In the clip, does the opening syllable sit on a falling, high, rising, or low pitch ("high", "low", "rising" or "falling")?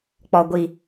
low